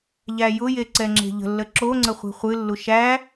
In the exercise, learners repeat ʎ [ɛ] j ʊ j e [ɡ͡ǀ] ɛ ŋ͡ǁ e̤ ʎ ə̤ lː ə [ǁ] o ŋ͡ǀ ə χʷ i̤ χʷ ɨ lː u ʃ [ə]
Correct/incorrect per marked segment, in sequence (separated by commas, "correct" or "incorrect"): incorrect, incorrect, correct, incorrect